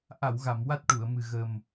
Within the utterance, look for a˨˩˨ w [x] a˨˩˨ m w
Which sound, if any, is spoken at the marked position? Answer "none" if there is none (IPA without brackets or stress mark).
ɣ